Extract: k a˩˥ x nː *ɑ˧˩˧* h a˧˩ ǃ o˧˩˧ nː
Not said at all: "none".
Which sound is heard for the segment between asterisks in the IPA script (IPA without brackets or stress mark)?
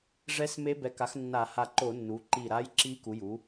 a˧˩˧